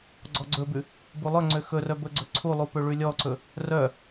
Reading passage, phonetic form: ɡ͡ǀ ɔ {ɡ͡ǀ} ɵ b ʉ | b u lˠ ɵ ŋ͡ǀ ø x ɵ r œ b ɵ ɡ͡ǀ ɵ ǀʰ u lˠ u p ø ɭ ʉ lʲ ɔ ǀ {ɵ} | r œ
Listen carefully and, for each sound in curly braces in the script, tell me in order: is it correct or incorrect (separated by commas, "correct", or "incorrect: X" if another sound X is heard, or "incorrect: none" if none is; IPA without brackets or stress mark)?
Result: correct, correct